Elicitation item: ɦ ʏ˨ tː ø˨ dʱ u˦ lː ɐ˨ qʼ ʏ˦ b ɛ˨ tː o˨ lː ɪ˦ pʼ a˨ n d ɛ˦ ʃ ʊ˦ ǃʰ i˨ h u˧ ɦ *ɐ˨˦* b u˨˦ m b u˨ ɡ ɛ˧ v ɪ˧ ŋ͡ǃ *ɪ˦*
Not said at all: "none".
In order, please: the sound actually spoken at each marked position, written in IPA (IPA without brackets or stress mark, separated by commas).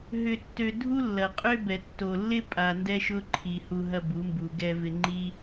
ɐ˧, i˦